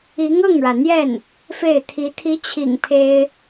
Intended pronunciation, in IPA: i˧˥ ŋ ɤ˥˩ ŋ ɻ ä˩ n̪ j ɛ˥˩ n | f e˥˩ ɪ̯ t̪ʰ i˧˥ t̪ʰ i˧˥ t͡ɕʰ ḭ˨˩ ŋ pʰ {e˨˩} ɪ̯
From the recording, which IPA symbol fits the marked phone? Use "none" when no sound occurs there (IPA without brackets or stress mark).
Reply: e˥